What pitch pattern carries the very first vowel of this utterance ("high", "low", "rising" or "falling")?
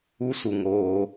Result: high